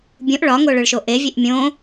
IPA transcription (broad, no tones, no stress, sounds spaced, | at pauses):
bʲ ũ ʔ ɭ ɒ ŋ o ɭ ø ɭ ʃ o ʔ e vʲ e ʔ mʲ õ